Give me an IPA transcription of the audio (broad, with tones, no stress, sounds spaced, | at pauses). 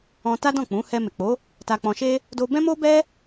ɔ̃˧ t a˦ d ɔ̃˦˨ k͡p ũ˨˦ h ɛ˧ m e˨ k͡p o˨˦ | t a˧ k͡p ɔ̃˧ ʃ e˦ | d o˧ b ɛ̃˦ m o˦ b ɛ˦